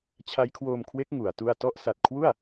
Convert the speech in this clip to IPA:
t͡ɕʰ a˦˥ j kʰ w oː˧ m kʰ w e˦˥ k̚ ŋ u˩˦ a̯ t u˥˩ a̯ t ɔ˥˩ ʔ s a˨˩ t̚ kʰ w u˥˩ a̯

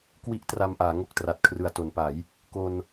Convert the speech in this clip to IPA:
k w i˦˥ ʔ t r a˧ m ʔ aː˩˦ ŋ o˥˩ k̚ t r a˨˩ t̚ kʰ r ɯ˨˩ a̯ t o˩˦ n p a˩˦ j | k o˧ n

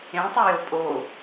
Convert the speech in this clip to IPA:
ẽ tˤ u j o pʼ o

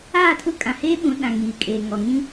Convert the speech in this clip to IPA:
aː˦˨ tʰ ʊ˦˨ kʼ ã˨ h eː˦ ɓ ũ˨˦ ɗ ã˨ ŋ iː˨ kʼ eː˨ ŋ ɔ˨ ŋ ĩ˦

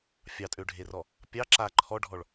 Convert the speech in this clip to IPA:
fʲ ɑ tʼ ø ɖʱ e r ɔ | pʲ ɑ ǁ a ǃʰ ɔ ɖʱ ɔ ɭ

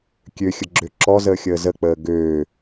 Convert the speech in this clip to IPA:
kʲ ø xʲ ə ɡ͡ǁ ø ǁ ɔ z əː xʲ əː z ə k͡p əː ɡ øː

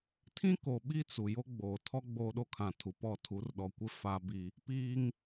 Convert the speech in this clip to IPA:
tʰ ĩ˦ k o˨ ɓ i˦ t͡s u˨ j o˦ ɡ͡b oː˨ tʰ ɔ˦ ɡ͡b oː˦ ɗ o˦ kʰ ã˨ tʰ u˨ p ɔ˦˨ tʰ u˨˦ r ɗ ɔ˨ kʷ ɪ˦ f a˦ b i˦ | p iː˦ ŋ

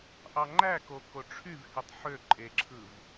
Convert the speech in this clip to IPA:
ʔ ɑ ŋ͡ǃ æ k o k o ʈ͡ʂʰ y v h i tˤ ħ ø ǃʼ e ǁʰ ɯ v

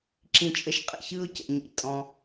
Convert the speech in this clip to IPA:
ǁ ĩ˧ t͡ʃʼ ə˧ ʃ qʼ ə̰˨ ç ɯ˧ ʊ̯ c ə̰˨ ɲ ḭ˨ tʼ ɔ̃˧

